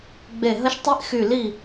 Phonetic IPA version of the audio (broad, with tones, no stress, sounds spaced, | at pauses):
ɡ͡b e˧˩ ɦ ə˧˥ ʃ tˤ i˧˥ ʔ x y˧˩ l i˧˩